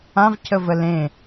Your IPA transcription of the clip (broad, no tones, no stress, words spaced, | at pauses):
ãvcʰə vəlẽ